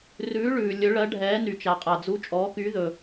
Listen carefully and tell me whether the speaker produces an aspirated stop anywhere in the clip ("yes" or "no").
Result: no